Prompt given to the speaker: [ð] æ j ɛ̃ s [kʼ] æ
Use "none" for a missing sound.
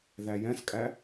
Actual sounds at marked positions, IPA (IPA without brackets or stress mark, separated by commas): ð, kʼ